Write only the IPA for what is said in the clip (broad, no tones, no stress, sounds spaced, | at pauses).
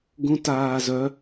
ɡ ũ t aː z œ